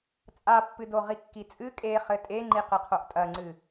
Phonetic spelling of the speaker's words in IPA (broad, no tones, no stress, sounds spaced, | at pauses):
t͡sʼ a pː ɨ d o ʁ i kː i t͡sʼ ɨ kʼ e χ ɘ tʼ e ŋ͡ǃ i q ɨ qʰ o ʔ tʼ ɐ ŋ͡ǀ ɨ